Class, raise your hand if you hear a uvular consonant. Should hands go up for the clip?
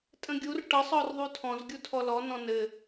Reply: no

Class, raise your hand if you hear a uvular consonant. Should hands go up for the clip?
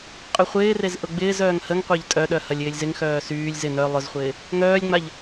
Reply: yes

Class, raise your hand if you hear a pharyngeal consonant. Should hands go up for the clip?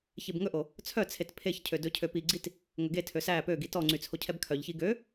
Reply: no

